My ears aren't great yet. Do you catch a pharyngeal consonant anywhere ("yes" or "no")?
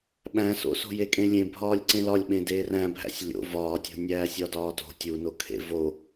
no